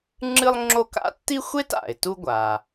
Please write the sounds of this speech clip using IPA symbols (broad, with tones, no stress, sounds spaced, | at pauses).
ŋ͡ǁ ɨ˥ lˠ ŋ͡ǁ o˥ k a̰˥ tː i˥ xʷ e˥ t a̰˩ ɪ̯ t u˥ ɡʷ a˩